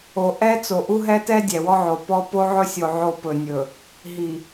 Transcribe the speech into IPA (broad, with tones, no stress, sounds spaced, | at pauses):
o˨ ʔ ɛ˦ t͡s o˨ ʔ u˦ ɦ ɛ˦ t ɛ˦ dʲ ɛ˨ w ɔ˦ ʕ o˨ p ɔ˦ p o˦ ʕ ɵ˦ sʲ o˨ ʕ o˦ p ɵ˨ nʲ ɵ˨ | ɦ i˨